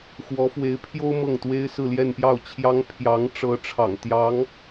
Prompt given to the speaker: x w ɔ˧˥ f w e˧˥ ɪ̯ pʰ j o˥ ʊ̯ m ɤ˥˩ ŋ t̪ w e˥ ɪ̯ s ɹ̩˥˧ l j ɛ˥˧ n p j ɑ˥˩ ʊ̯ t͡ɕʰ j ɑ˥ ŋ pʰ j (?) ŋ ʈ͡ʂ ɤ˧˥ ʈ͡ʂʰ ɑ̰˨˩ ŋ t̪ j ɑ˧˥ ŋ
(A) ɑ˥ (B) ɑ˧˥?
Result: B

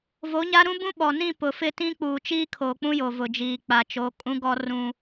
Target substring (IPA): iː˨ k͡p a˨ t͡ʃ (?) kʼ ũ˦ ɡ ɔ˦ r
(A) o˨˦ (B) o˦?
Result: A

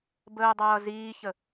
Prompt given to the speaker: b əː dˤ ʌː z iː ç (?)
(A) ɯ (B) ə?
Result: B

